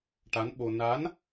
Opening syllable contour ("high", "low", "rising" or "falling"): rising